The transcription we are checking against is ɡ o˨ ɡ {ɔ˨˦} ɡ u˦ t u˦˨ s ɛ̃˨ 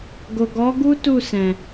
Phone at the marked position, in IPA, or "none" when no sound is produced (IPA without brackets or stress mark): ɔ˨˦